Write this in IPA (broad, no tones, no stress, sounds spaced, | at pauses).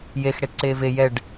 j e x ɽ e t ǀ eː v e j ɛ ɖ